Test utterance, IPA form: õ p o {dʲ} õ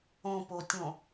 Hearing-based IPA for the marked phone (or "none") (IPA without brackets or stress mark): tʲ